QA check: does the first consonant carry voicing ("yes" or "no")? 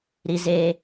yes